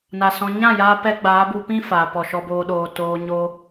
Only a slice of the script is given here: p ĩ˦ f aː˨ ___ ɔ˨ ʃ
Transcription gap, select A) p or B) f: A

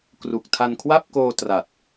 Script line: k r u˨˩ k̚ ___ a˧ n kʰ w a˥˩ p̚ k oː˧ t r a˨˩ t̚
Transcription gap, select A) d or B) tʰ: B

